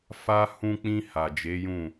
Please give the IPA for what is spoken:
fa˦ hũ˧k͡pĩ˧ ha˨d͡ʒe˨˦jũ˦˨

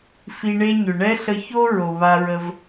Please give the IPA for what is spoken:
fi˧ɳe˥ ɲʏ˩ ɳɛ˥ɬə˧ço˥ ɹo˩βa˧ɹə˧v

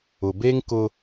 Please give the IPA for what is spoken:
ʊ˨be˦ŋ kʊ˦

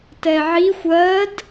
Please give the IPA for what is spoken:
tɛʕixʷ ɜd

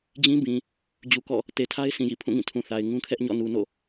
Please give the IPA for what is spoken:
d͡ʑĩ˦bĩ˨ | d͡ʑu˨kɔ̰˦˨ | te˨tʰa˦ɪ̯sʰĩ˨jḭ˦˨ pʰũ˦˨ŋĩ˦˨tʰũ˨θa˨ɪ̯ ŋũ˦kʰɛ˦ʔɲɔ̰˦˨ nu˨ no̰˦˨

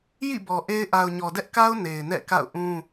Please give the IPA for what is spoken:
jḭ˦˨bɔ˨ ʔe˦ɪ̯ ʔa˨ʊ̯ɲɔ˨dɛ˦ʔka˦ʊ̯ ne˨ɪ̯nɛ̰˦˨ka̰˦˨ʊ̯ʔũ˦

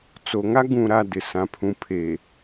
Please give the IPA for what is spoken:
t͡so˨ŋa˦ ɡũ˨ɾa˨ dɪ˨ sã˨pʰũ˨ pʰe˨

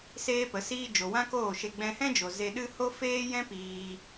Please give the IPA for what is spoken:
seː˦pə˨˦ siː˧d͡ʒo˨ wã˦koː˦˨ʃe˧ ɡ͡bɛ̃˧hɛ̃˦d͡ʒo˨ ze˧ ɗɨ˦ ho˦feː˦jɛ̃˦ piː˧

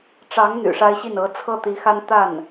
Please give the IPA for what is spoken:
ʈ͡ʂɑ˧˥ŋ n̪y̰˨˩ʂa˥ɪ̯ɕi˥˩n ɤ˧˥t͡sʰɤ˥˩t̪i˧˥xa˥n t̪a˥˩n

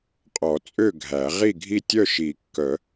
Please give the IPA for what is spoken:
qʼɔ˨˩˦ t͡sʼø˥˨ɡʱæ˨˩˦ ʁi˥˨ɡʱi˥˨ tʲœ˥˨ʃi˨˩˦kːœ˨˩˦

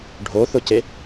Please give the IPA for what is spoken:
ɖʱoθʊce

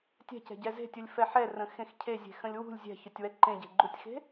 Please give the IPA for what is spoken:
tʲɛ̤cɛ̤ɟɛ ze̤tʲulʲfɛ ħɛrə̃xẽx cʰezʲe̤xə̃lʲ wṳlʲ zʲɛ̤çʊtʲwɛ ǃẽɟe̤ɡ͡ǃutʲxe̤

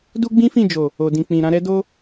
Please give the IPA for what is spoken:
du˦ɡ͡bĩ˦fĩ˦˨d͡ʒo˨ | o˨dĩ˨ k͡pĩ˨ ɾã˧ɾɛ˦ do˦

